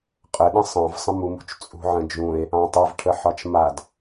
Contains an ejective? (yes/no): yes